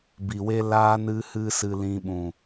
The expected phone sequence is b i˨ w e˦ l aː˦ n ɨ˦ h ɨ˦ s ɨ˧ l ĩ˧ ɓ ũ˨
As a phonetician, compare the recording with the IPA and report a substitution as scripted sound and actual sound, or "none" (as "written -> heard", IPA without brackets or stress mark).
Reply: none